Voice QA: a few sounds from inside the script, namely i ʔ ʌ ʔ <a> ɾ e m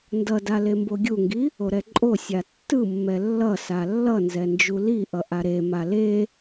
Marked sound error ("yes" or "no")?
no